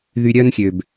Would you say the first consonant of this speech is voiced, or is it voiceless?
voiced